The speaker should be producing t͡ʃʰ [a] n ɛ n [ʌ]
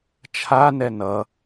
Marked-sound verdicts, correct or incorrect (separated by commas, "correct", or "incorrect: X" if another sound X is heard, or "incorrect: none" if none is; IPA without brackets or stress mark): correct, correct